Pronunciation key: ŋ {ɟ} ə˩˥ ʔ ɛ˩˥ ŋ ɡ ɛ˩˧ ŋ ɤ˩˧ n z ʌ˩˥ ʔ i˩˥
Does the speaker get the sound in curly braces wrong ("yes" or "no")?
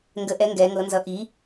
yes